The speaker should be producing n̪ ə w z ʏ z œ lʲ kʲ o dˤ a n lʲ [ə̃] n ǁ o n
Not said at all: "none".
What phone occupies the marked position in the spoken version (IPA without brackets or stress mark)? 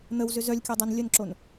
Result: ə